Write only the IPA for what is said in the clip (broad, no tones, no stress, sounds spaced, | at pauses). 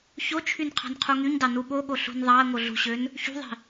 ç o t͡ʃʰ y n qʰ ɑ̤ n qʰ u ŋ y ɲ d ɑ n u ɓ o ɠ o ɬ ṳ n ðˤ ɑ ə̯ ŋ o ɮ ṳ ɕ ø n | ç ṳ ðˤ i̤